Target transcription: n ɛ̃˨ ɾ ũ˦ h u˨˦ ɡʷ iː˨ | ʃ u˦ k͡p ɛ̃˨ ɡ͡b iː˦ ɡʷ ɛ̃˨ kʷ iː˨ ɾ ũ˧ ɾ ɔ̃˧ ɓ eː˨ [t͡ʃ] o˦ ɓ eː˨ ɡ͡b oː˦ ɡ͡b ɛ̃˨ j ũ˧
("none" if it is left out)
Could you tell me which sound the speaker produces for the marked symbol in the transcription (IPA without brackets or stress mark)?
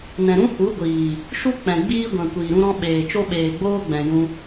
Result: t͡ʃ